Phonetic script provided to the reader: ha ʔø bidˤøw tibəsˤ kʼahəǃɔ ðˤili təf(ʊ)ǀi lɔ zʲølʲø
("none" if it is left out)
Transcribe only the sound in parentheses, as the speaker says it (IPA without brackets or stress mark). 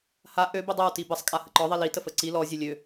ə